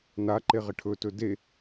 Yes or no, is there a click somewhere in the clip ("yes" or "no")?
yes